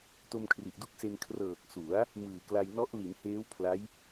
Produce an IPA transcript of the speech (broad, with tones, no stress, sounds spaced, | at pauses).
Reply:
t o˧ m kʰ r i˨˩ ʔ d u˥˩ k̚ s e˧ n kʰ r ɤː˨˩ k̚ s u˩˦ a̯ | m ɯː˨˩ k l a˧ j n ɔ˦˥ ʔ l i˩˦ n h eː˦˥ w pʰ l a˦˥ j